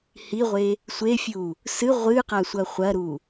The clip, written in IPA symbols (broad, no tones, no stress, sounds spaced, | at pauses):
h i ʁʷ e | sʷ e fʲ u | s ɨ ʁʷ ɨ q a sʷ ɐ χʷ ɐ ɾ u